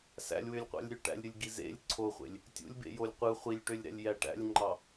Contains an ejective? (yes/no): no